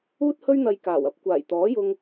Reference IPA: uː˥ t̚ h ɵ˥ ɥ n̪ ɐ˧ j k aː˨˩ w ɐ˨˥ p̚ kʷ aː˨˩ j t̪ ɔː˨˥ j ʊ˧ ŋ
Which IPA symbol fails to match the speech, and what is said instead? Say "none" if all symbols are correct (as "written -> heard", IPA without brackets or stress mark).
none